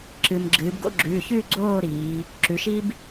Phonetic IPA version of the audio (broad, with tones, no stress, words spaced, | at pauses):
ǁɨ˩mɡ͡ǁɨː˩˧b ɡo̰˥˨ɡ͡ǁʉː˩˧˩çʉː˥˨ ɡ͡ǀoː˥˨ɾiː˩˧ | ǁʉ˩˧ʃi˦b